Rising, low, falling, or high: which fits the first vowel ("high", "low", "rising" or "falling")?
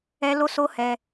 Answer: high